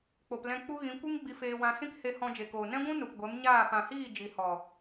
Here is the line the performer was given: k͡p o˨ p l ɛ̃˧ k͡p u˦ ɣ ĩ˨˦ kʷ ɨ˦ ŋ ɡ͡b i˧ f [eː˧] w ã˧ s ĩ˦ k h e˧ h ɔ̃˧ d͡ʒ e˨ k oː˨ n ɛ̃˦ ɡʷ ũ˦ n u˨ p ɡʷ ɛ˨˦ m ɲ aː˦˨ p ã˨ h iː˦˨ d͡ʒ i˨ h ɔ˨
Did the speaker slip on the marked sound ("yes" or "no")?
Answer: no